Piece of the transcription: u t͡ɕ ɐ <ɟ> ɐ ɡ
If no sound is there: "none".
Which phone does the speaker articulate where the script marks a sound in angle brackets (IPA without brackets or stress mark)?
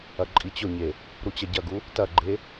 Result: ɟ